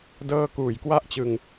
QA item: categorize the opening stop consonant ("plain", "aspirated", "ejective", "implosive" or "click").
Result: plain